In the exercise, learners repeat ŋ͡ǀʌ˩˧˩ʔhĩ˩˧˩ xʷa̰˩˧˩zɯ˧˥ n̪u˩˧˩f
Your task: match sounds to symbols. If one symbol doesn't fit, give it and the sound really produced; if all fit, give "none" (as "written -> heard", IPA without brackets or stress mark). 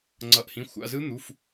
none